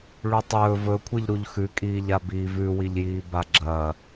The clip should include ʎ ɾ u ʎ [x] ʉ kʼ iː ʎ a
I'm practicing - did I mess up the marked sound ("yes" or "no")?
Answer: no